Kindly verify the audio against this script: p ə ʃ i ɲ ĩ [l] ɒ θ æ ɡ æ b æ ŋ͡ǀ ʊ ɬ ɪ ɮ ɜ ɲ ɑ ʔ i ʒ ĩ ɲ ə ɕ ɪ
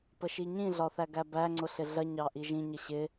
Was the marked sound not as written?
yes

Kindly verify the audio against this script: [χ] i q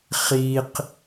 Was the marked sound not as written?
no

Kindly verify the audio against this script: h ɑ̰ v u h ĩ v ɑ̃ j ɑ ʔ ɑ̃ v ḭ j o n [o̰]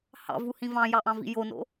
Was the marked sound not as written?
no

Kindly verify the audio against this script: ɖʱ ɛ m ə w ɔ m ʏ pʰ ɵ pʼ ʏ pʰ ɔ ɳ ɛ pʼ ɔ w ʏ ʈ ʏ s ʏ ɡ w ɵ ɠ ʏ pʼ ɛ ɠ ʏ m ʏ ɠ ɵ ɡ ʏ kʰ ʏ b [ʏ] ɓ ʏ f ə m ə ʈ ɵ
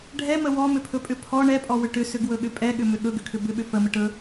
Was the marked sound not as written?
no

